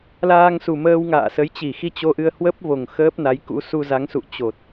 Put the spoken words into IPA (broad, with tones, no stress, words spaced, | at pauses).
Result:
laː˧ŋsu˨˩ məː˧wŋa̰ː˧˨sə˨˦j t͡ɕi˧˩xi˧ t͡ɕo˧ʔɨ˧ə̯ hwə˦˥p̚vo˨˩ŋ xəː˦˥p̚na˨˦jkṵ˧˥ su˧za˨˦ŋ sṵ˧˨ t͡ɕo˨˩t̚